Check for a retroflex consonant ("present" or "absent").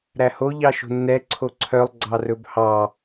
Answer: absent